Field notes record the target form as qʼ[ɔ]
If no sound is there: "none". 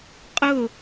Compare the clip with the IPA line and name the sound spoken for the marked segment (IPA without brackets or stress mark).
ʊ